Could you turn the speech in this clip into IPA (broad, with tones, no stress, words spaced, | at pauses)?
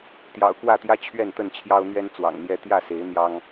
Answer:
t̪jɑ̰˨˩ʊ̯kwä˥˨t̪jä˦ t͡ɕʰɥɛ˥˨nt̪ə˥˨n t͡ɕʰjɑ˦ʊ̯n̪ɥɛ˦n t͡swɑ̰˨˩ŋn̪jɛ˦ t̪jä˥˨se˨˦ɪ̯ n̪jɑ˦ŋ